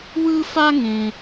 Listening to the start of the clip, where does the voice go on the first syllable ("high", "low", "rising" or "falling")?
high